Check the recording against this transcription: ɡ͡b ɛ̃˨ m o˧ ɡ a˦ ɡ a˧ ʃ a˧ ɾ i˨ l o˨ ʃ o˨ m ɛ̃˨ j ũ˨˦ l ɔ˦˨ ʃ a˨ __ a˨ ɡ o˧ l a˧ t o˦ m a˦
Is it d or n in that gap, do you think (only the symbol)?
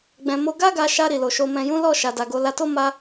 d